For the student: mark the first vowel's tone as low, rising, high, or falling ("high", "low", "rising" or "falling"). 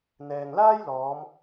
low